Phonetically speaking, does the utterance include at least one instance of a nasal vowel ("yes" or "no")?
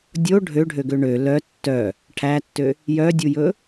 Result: no